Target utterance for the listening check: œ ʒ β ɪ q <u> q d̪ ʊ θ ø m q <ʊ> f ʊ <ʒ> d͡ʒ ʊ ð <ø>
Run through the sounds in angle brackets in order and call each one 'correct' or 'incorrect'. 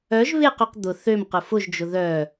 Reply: incorrect: y, correct, correct, incorrect: œ

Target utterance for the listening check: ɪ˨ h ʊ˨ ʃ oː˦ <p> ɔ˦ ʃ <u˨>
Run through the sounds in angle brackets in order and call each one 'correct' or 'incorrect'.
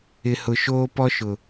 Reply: correct, incorrect: ʊ˨

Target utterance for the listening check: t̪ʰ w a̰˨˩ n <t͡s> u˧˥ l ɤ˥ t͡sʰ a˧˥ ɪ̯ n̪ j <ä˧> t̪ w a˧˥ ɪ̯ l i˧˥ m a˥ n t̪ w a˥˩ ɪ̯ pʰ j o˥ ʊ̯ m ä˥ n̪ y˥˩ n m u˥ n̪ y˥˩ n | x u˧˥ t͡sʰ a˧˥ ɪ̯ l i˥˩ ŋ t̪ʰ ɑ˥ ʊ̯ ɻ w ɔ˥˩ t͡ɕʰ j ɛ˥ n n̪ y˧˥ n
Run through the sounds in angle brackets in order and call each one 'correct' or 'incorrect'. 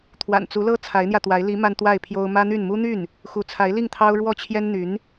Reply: correct, correct

